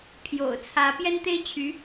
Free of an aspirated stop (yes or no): no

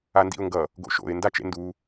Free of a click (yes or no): yes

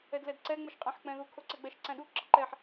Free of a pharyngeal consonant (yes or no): no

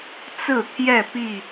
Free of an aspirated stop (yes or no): no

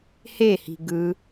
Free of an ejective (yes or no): yes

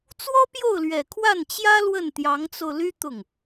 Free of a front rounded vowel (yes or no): no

